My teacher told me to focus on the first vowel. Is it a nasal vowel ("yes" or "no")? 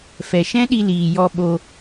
no